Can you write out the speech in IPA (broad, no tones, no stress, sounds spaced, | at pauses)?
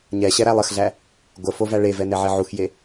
ɲ ɛ ɕ ɛ ɾ æ lˠ ə x ɮ æ | ɡʷ ə f o v æ ɭ e v ɛ n ɛ ʕ e ʕ u x j e